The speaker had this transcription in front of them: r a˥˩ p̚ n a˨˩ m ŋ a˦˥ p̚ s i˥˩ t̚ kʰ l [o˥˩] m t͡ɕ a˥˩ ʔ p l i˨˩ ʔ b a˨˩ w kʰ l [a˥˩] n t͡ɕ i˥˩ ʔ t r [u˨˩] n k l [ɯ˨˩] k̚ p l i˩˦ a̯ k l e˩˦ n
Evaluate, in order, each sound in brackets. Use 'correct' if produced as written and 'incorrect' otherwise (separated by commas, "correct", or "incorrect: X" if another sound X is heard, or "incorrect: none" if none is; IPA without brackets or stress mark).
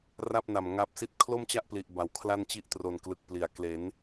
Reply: correct, correct, incorrect: o˨˩, correct